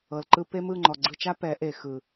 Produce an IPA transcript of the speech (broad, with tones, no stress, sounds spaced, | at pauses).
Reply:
ɤ˨ l ǃ ɯ˧ p e˦ m ɯ˦˨ ŋ͡ǃ ɔ˨ ɡ͡ǀ ɯ˧ t͡ʃ a˦ p ɛ˨˦ ʔ e˨ x ɯ˨